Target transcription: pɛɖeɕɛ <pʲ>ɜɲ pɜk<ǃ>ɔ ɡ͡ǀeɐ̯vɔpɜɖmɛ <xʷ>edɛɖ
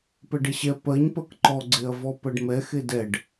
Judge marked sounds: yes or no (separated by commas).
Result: no, yes, no